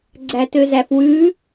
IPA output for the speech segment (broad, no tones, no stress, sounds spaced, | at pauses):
ɡ͡ǀ æ t ø z æ f w ʉ